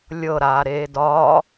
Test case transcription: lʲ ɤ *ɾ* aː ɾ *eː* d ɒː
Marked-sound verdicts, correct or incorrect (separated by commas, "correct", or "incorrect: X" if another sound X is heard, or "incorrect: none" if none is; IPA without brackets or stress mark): correct, correct